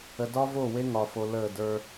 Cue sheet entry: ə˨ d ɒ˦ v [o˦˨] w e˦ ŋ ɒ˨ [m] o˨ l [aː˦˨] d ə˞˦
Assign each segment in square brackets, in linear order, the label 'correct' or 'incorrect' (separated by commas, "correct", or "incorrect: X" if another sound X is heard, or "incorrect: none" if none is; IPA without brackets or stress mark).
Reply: correct, incorrect: f, incorrect: əː˦˨